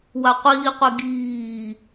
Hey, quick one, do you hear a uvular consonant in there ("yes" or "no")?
yes